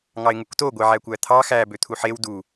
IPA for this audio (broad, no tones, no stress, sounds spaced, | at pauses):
ŋ ɑ ɪ̯ ŋ u k t o ɡʷ e ʕ æ kʷ æ t̪ʰ ɑ x æ b ø t̪ʰ u ħ e w d u